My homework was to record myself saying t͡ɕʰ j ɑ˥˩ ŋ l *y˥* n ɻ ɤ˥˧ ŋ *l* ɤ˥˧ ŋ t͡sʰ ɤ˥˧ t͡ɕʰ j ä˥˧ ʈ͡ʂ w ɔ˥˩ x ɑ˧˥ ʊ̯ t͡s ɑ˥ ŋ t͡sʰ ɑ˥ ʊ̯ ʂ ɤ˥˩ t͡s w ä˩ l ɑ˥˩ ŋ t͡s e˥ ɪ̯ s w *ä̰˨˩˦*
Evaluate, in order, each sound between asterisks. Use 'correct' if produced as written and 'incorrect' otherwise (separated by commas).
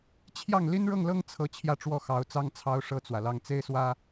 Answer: incorrect, correct, incorrect